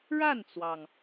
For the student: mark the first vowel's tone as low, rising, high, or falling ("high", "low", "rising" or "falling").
falling